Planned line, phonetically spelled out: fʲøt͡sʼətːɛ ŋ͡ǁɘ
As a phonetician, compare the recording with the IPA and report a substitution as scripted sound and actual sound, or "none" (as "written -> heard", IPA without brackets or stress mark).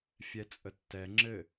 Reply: ø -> ɛ